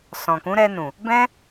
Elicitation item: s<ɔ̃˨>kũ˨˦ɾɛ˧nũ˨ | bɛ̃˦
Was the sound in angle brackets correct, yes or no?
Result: yes